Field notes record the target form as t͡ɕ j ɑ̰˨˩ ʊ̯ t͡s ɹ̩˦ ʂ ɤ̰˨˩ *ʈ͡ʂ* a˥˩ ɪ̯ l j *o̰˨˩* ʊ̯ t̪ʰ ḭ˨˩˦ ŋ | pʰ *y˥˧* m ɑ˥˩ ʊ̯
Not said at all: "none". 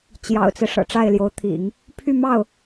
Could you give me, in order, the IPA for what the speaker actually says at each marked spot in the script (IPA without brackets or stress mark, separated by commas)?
ʈ͡ʂ, o˧˥, y˥˧